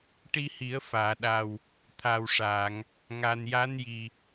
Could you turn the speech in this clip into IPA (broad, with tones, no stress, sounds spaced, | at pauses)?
ʈ i˧ h i˨˩˦ ə̯ f aː˨˩˨ ɗ a˨˩ w | t̪ʰ aː˨˩ w ʂ aː˨˩˨ ŋ | ŋ a˨˩ n j a˧˥ n j i˨˩